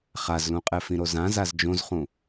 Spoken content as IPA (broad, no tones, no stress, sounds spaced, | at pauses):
χ a z l ũ qʼ ɛ f ĩ ɾ o z ã z a z d͡ʒ õ z χ ũ